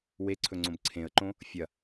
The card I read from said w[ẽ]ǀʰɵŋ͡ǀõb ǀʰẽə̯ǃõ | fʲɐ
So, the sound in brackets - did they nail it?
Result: no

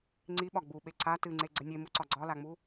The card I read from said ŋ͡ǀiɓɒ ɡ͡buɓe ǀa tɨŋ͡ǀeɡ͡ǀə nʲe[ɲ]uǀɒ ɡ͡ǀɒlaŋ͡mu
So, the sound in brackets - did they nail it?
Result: no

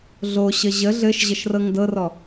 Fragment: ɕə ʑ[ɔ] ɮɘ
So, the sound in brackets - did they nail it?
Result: no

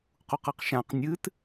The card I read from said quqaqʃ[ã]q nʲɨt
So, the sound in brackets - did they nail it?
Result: yes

